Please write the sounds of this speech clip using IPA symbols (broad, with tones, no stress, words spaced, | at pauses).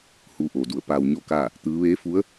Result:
huː˧˥ʔoː˩du˧˩ə̯ paː˧wɲo˥˨kaː˥˨ | t̪ɯː˧˥ ʋeː˧˥fu˧˥ə̯